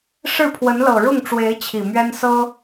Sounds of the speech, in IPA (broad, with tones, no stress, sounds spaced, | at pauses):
ʂ ɻ̩˥˩ pʰ w ə˧˥ n l ɤ˨˩ ɻ ʊ˥˩ ŋ ʈ͡ʂ w e˧˥ ɪ̯ t͡ɕʰ i˨˩ m ɥ ɛ˥ n s ɤ˥